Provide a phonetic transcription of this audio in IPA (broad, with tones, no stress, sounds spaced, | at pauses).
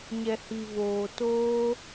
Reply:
ɲ ɛ˨ h i˨ v oː˨ t oː˦